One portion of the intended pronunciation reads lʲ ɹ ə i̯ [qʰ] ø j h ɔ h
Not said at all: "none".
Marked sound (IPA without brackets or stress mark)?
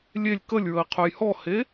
qʰ